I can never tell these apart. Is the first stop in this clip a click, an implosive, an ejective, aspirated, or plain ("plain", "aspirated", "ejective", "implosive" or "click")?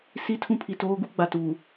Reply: aspirated